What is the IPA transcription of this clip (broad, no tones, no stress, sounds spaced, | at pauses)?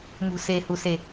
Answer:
m ṳ s e h u s e